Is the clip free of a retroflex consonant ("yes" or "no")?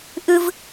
yes